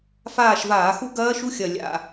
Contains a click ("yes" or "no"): no